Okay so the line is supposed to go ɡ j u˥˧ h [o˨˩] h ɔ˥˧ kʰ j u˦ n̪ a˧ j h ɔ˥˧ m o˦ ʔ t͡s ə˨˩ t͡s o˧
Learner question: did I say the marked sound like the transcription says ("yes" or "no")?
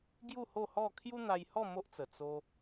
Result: no